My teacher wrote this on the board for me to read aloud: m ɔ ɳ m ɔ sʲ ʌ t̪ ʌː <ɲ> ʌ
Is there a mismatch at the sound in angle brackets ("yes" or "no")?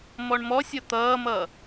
yes